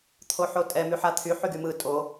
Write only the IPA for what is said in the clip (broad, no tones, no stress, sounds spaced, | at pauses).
t̪ʰ o ħ o tʼ ɛ m y ħ a t̪ʰ y ħ y ɡ y m ɯ tʼ o